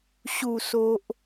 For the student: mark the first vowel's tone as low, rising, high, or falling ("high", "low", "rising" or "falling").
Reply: falling